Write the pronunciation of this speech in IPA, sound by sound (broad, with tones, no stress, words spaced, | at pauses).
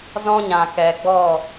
zɔ̃˦ɲã˨ kɛ˨ɡ͡bɔ˦˨